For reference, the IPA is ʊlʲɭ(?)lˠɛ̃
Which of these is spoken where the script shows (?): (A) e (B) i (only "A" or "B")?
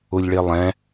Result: A